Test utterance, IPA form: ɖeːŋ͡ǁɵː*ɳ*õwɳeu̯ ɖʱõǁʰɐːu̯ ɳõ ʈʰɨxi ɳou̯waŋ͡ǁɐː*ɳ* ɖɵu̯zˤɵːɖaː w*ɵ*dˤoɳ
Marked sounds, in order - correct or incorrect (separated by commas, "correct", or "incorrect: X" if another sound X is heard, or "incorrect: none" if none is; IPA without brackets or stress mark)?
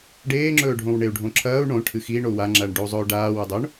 incorrect: ɖʱ, correct, correct